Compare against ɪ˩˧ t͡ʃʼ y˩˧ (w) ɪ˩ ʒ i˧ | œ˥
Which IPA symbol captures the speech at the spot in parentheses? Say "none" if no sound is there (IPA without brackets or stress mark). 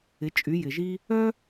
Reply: j